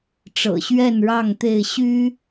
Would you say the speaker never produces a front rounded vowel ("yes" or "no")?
no